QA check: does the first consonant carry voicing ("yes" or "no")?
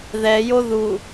yes